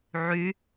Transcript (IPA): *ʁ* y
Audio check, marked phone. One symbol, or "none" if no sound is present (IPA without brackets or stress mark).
ʕ